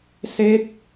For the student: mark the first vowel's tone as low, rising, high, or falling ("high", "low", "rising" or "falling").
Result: falling